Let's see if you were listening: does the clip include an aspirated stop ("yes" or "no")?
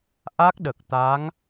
no